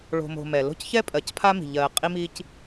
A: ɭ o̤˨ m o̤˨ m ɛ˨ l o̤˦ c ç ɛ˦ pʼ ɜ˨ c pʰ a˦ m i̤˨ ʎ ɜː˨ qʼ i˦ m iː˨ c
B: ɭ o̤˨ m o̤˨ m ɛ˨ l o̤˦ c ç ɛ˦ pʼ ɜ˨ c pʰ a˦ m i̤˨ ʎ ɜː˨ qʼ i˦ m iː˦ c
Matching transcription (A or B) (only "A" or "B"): B